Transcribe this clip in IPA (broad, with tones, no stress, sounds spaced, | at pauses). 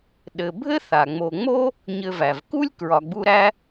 ɗ ɘ˨ bʱ ɘ˥ θ a˩ ŋ͡m o˨ ŋ͡m o˥ | ɲ ɘ˨ v æ˩ v k u˦ lʲ k ɹ ɒ˨ ɡ͡b u˦ ɾ æ˥